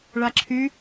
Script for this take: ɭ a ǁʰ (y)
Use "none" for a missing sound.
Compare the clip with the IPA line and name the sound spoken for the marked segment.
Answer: y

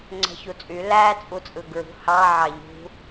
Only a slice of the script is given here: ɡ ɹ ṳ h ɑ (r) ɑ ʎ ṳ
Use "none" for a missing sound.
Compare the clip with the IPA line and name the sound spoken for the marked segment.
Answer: ʕ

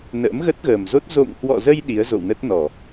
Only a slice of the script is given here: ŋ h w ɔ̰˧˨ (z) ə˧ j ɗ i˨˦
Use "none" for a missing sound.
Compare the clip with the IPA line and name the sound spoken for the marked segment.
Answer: z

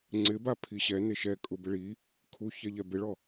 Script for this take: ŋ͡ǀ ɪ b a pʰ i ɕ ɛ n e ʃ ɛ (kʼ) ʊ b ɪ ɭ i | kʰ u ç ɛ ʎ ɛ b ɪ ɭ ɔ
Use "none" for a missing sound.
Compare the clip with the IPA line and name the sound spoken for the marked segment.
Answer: kʼ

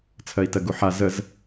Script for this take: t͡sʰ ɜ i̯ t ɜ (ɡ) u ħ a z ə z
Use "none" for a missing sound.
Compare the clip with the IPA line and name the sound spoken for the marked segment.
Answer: ɡ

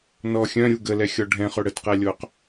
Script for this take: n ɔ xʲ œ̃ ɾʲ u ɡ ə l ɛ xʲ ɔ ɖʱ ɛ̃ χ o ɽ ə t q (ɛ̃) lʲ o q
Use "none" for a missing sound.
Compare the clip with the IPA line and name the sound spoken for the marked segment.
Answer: ɛ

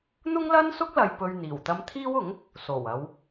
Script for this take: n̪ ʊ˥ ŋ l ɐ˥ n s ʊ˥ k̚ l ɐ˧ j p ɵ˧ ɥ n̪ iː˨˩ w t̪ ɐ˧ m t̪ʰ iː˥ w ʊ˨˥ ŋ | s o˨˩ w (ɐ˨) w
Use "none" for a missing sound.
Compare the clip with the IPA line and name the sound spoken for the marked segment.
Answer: ɐ˨˧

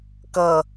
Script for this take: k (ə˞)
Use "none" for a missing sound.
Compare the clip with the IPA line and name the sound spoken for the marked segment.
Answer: ʌ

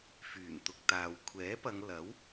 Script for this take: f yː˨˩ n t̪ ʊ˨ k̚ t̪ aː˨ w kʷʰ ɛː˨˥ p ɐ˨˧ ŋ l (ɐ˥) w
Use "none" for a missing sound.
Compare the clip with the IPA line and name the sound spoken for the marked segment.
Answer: ɐ˨˥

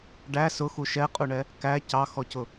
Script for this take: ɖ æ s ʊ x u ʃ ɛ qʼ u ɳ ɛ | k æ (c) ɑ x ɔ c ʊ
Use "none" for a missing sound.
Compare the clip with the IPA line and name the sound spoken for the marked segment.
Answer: c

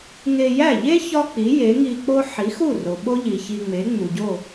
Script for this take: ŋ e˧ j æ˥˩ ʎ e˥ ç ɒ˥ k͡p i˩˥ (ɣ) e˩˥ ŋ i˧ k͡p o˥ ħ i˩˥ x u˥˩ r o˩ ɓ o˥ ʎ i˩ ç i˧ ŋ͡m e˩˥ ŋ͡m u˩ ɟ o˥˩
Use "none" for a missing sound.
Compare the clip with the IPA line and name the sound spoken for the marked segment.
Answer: j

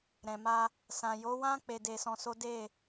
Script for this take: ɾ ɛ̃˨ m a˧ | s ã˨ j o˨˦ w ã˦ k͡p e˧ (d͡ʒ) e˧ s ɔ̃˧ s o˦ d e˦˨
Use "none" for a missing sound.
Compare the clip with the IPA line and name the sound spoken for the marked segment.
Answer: d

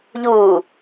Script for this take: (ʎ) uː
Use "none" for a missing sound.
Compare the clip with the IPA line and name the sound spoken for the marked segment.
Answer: ʎ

